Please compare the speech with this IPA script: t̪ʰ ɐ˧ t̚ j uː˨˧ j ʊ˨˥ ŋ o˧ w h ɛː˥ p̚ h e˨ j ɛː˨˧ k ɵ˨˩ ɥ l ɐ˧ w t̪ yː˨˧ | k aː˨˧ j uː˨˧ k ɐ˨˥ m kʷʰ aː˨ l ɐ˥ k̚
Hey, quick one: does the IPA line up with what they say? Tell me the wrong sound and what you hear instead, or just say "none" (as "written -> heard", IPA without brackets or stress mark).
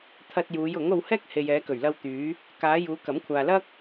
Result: p̚ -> k̚